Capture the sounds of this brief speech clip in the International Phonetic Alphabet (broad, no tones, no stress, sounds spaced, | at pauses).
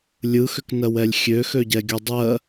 lʲ ɯ x ʏ k n ɜ w ɛ lʲ xʲ ø x ø ɟ ɛ ɡʲ u dˤ ɜ